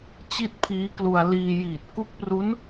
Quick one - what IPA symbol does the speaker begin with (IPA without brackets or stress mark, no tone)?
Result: t͡ɕ